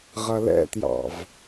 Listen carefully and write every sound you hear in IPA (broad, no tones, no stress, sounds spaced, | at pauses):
ʁ ʌ l ɛ̰ t j ɑ̰ v